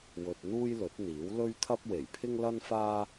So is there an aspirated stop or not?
yes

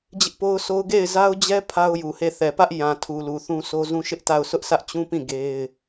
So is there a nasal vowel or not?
yes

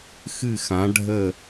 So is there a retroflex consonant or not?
yes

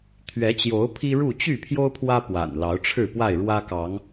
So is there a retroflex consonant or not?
yes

